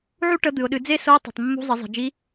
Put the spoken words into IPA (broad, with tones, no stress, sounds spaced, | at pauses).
ʕ u˥ ʈ ə˧˥ d̪ ɨ˩ ʊ̯ ɗ ɨ˩˧ d͡z e˥ s o˧˥ tˤ e̤˩ tˤ mː ṳ˧˥ zˤ ɘ˩˧ zˤ e̤˩ d͡ʒ i˧˥